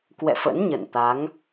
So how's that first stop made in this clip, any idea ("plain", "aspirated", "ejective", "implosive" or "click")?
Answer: plain